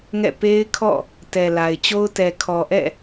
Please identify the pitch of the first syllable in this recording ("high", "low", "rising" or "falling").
falling